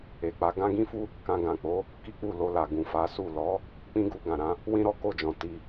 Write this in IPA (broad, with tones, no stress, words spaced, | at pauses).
e˨k͡pa˨˦ ɡã˦ ɡĩ˦fu˦ | kã˧ ɡã˨k͡po˨˦ | ki˦k͡pu˦˨lo˧la˨ ɡũ˨fa˨˦su˦˨ lɔ˨˦ | k͡pĩ˦ɡu˧ɡã˨ɾã˨˦ | wĩ˦ɾɔ˦ ko˦˨d͡ʒɔ̃˨ ti˧